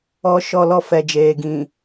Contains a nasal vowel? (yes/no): yes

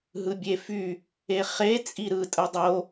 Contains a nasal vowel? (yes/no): no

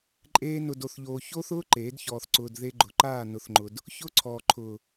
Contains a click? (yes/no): yes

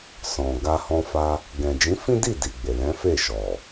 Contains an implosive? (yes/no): no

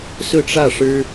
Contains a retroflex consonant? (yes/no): yes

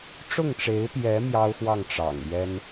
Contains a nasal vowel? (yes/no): no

